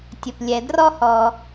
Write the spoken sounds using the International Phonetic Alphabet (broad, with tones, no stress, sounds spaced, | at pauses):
tʲ ə˩ p lʲ ɛ˩ d r ɔ˥ h ɔ˩